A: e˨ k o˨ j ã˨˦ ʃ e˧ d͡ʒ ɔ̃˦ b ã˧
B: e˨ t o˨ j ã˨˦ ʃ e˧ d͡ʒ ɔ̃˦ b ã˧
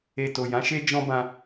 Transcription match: B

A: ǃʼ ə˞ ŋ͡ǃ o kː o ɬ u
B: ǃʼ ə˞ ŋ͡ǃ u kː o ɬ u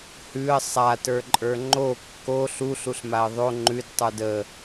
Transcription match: A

